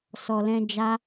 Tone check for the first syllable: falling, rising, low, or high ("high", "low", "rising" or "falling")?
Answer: low